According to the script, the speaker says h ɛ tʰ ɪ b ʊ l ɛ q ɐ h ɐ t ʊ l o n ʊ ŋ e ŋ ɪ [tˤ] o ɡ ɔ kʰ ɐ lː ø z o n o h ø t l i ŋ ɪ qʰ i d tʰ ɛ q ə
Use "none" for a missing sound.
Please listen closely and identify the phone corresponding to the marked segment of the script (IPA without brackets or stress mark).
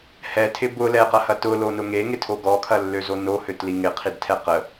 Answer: tʰ